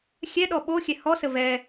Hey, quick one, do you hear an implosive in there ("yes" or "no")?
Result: yes